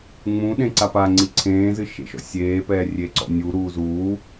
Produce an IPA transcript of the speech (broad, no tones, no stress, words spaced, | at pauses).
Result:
ŋ͡mũ ɗẽǀapaŋ͡ǀi ǀʰẽːzɨ ʃḛʃɔ̰sʲeːpɛː rʲeǀɔ̰nʲuɾuː zuː